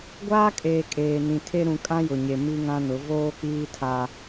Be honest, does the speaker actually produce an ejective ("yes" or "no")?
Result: yes